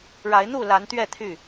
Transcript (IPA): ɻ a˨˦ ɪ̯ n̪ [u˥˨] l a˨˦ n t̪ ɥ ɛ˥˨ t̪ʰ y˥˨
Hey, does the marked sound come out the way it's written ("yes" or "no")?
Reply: yes